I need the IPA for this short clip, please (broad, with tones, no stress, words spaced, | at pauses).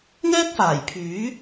ŋɛː˥k̚faː˨˩jpʰyː˨˥